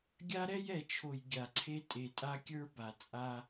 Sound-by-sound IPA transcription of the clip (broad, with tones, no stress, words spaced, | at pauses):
ɡʲa˦ɾɛ˦jɛ˨t͡ʃʰo˨j ɡʲa˨ǀʰe˦ tʼe˨tʼa˦kʲə˞˦ ba˨t͡sʼa˦